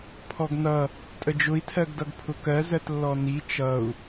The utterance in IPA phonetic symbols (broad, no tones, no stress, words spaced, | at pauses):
pʰɔɡnʌ | tʼəd͡ʒʊi̯tʰɜɡdʌɡ pʰʊkɜzɜt lːɔni t͡ʃʌu̯